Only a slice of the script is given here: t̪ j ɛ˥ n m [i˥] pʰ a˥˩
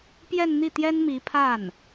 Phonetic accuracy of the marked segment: incorrect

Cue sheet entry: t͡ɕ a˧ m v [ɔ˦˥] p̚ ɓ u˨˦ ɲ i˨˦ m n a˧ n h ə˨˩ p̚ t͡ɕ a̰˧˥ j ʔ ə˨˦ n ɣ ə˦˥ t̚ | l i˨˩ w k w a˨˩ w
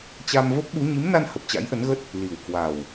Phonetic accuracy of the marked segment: incorrect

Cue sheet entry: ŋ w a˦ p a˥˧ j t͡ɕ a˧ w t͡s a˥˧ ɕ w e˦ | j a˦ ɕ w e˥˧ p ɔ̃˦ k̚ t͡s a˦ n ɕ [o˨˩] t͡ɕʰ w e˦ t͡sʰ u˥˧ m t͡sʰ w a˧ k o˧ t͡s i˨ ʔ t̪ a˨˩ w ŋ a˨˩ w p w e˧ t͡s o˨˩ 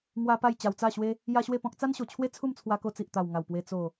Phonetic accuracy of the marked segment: correct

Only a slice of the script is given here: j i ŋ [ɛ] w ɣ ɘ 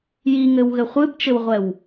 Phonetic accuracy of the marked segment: incorrect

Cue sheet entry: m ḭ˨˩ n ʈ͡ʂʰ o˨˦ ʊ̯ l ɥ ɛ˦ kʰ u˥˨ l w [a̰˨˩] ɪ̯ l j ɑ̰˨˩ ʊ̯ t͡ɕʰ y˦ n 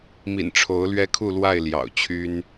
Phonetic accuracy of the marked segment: incorrect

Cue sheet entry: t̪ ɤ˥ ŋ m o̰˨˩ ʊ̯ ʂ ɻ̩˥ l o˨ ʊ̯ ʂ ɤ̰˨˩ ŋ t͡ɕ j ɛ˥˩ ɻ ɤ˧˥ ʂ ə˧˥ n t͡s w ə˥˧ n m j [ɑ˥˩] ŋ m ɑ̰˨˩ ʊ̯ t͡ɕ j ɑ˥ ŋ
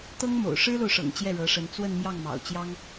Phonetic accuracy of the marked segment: correct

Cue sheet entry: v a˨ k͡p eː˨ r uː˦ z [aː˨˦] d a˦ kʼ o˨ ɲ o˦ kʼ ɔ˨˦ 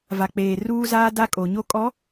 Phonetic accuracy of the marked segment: incorrect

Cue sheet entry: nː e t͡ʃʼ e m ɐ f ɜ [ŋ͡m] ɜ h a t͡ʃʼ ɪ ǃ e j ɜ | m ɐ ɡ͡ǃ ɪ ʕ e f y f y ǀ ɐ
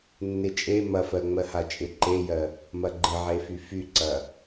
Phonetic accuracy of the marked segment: correct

